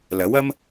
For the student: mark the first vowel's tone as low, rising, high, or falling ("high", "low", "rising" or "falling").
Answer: rising